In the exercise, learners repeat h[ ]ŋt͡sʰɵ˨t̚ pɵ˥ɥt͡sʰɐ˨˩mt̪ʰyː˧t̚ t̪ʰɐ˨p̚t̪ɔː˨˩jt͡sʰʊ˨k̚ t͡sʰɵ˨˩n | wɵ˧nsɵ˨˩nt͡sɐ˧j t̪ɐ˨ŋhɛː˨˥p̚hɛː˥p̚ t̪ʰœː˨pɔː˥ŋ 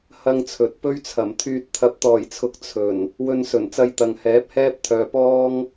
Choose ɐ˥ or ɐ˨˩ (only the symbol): ɐ˥